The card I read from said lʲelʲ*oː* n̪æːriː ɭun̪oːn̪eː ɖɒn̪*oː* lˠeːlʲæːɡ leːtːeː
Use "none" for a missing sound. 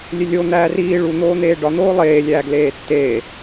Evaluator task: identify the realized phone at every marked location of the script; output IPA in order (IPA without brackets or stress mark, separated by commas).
o, oː